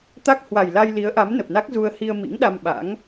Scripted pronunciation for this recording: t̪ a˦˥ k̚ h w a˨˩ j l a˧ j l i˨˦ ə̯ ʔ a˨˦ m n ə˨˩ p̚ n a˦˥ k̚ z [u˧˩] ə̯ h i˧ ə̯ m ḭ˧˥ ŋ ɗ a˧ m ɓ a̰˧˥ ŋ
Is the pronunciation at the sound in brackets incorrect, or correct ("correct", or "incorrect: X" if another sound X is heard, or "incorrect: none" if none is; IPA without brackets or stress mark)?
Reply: incorrect: u˧